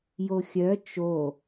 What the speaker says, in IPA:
j o xʲ œ t͡ʃ o

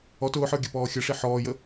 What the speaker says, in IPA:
ɔ t ʊː ħ ə˞ ɡʲ ə p ɔː xʲ ə ʂ i ħ ɔː j ə

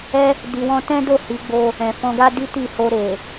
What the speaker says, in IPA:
ɛ˦ | d i˧ w ɔ̃˦ t ɛ̃˦ d o˦˨ h i˨˦ ɡ͡b o˧ | ɛ̃˨ f ɔ̃˧ ɡ a˦ d i˦ t i˦˨ h o˧ ɾ e˨

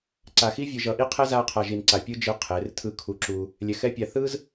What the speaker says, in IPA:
ǀ a˧ x i˥ vʲ ɯ˧ ʒ ʌ˧˥ ʔ i˥ qʰ ɛ˥ z a˥ qʰ a˧ ʒ i˧ n ǀ a˧ pʲ ɯ˥ d͡ʒ ɯ˧ qʰ e˩˧ r tʰ ɯ˧ kʰ u˧ ǁ u˧ | lʲ ɛ˧ x ɛ˥ pʲ a˧ θ ɯ˥ z

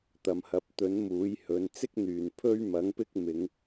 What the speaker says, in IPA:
t̪ ɐ˨ m h ɐ˨˥ p̚ t̪ ɵ˨˥ n m uː˨˥ j h ɵ˨˧ n t͡s ɪ˥ k̚ n̪ yː˨˩ n pʰ ɵ˥ ɥ m ɐ˨˥ ŋ p ɪ˥ k̚ m ɪ˨˧ ŋ

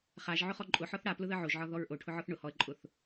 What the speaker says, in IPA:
χ a ʒ ʕ ʊ χ ɔ ǃʼ ʊ ħ ɔ θ ɽ a p l ʊ ð ə ʕ o ʒ ʕ ɒ ð ɔ ɹ ʔ o ʈʰ ʊ ʕ ɔ θ ɳ ʊ h ɔ ə̯ ǃʼ ʊ θ

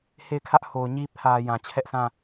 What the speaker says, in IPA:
h e˦˨ ɪ̯ kʰ ä˦ ʔ h o˨ ʊ̯ ɲ i˦ pʰ ä˨ j ã˨ t͡ɕʰ ɛ˦ ʔ sʰ ã˦˨

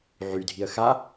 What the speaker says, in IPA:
ʕ y dʱ i ə̯ x a

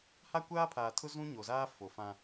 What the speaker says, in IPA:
h a˦ kʷ aː˦ pʰ aː˨ tʰ ʊ˦ z ũ˦ ɲ o˨ z aː˦ f o˨ f ã˦

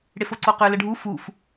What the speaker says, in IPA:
ɽ e f o ǀ o q ø l ə ɖʱ u f u f

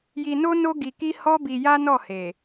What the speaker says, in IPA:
j i˧ n o˦ n o˦ ɡ i˧ k i˦ h ɔ˦ b i˧ j a˦ n ɔ˦˨ h e˨

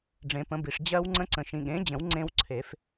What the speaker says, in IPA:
ɖ͡ʐ ẽ˨˩˦ p ə̃˩˥ b i˨ ʂ d͡ʑ ɜ˦˥ w ŋ͡ǀ ə̃˦˥ ǀ ə̃˨ ʃ ĩ˨ ɠ ẽ˩˥ d͡ʑ ə̃˨˩˦ w ŋ͡ǀ ẽ˦˥ w ǀʰ e˨˩˦ f

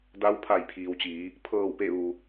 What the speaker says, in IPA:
d a˧ w pʰ a˧˩ j pʰ iː˩ w t͡ɕ iː˩˧ | pʰ ɤː˧˩ w p e˧˩ ʋ u˩

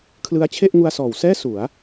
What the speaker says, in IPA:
kʰ l ɯ˦˥ a̯ t͡ɕʰ e˥˩ ʔ ŋ u˧ a̯ s ɔː˩˦ w s ɛː˥˩ s u˩˦ a̯

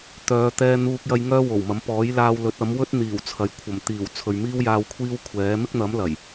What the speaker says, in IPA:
t̪ œː˨˧ t̪ ɛː˧ n̪ uː˧ k̚ j ɐ˧ j ŋ œː˥ w o˨˩ w m ɐ˨˥ m p ɔː˨˥ j l aː˧ w l ɵ˨˥ t̚ ɐ˨˥ m w ɵ˥ t̚ n̪ iː˨˩ w t͡sʰ ɐ˨ j kʷʰ ɐ˨˩ m t̪ iː˨˩ w t͡sʰ ɵ˨ ɥ m iː˥ w j aː˧ w kʷʰ iː˥ w kʷʰ ɛː˨˥ m ɪ˥ k̚ n̪ ɐ˨˥ m l ɐ˨˩ j

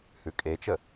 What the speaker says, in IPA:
h ʉ kʼ e t͡ʃ ə

